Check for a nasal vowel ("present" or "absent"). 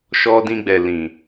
present